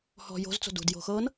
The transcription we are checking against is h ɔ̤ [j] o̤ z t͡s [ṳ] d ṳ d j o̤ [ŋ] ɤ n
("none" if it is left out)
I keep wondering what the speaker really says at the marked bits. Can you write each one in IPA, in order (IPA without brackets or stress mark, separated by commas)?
j, o̤, x